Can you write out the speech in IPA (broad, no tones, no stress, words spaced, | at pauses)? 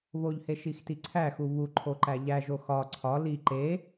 βoʎhe ʃixtiǀʰæxu βu ǃʰoǃæʎæʒo xɒ ǀʰɒ li ǃe